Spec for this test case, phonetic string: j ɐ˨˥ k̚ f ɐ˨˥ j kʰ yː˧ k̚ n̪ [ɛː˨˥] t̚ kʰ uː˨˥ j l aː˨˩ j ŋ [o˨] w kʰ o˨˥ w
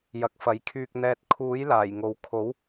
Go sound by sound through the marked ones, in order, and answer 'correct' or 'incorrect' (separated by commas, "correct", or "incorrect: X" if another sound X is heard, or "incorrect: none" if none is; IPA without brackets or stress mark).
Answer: incorrect: ɛː˨, correct